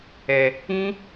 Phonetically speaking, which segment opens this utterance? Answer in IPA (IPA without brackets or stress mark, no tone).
ɛ